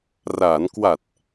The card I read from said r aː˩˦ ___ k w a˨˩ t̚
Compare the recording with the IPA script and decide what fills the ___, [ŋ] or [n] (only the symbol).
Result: n